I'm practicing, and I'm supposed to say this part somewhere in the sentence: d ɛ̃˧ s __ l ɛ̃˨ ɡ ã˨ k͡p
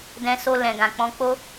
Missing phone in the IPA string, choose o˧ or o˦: o˧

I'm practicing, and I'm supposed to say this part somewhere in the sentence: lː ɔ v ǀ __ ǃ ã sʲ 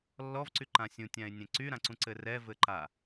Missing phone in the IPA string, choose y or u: y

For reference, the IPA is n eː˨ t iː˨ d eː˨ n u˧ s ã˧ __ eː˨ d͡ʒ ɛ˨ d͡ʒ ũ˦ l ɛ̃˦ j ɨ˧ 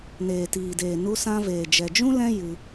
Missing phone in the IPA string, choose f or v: v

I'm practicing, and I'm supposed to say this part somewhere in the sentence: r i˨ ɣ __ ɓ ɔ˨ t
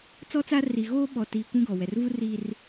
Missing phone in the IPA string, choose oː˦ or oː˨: oː˦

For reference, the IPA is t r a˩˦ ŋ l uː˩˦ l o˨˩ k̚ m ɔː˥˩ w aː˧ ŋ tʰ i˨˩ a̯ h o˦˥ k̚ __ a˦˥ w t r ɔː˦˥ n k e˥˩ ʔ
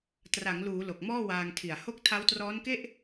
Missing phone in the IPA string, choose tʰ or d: tʰ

